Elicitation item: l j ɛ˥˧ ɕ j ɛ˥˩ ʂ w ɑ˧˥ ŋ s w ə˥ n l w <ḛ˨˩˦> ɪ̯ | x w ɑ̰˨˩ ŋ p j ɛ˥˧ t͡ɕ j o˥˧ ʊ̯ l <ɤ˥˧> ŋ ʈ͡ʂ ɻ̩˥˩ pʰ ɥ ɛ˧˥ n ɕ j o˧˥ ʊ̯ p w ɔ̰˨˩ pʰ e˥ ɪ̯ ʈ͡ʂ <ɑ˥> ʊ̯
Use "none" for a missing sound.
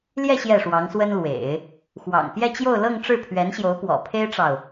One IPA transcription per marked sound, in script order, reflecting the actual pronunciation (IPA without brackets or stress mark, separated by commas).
ḛ˨˩˦, ɤ˥˧, ɑ˨